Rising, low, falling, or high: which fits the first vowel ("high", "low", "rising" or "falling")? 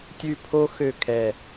falling